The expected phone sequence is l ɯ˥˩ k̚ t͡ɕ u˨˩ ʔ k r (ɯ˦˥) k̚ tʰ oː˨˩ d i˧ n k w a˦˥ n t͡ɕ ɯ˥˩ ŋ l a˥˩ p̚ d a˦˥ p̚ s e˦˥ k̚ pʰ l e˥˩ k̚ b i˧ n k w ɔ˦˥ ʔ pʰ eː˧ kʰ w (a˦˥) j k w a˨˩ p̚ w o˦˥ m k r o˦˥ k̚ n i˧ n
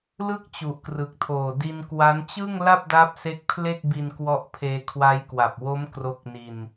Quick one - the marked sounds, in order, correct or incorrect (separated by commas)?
incorrect, correct